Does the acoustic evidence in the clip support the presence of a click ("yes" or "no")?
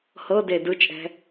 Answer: no